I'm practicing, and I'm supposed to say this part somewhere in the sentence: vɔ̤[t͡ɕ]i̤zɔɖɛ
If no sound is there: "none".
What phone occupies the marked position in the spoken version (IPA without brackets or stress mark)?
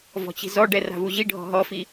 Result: t͡ɕ